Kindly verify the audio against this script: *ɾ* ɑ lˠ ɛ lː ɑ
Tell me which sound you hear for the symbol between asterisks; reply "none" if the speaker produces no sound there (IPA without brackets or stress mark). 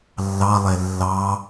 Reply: lː